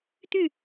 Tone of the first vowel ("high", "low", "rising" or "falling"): falling